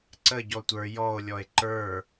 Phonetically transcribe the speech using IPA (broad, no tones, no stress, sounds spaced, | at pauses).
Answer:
ǀ ə ɟ ɔ tʷ ə˞ j ɔ o̯ lʲ ɔ e̯ ǃ ə˞